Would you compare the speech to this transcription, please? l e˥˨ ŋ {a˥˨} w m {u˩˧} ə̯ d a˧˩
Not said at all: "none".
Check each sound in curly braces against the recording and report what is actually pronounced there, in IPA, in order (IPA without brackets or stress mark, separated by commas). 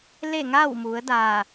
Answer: a˥˨, u˩˧